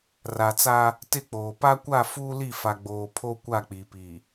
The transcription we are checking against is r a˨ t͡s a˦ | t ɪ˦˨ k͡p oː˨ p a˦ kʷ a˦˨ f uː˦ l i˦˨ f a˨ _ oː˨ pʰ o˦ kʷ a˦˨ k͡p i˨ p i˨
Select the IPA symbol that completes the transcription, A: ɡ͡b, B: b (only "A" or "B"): A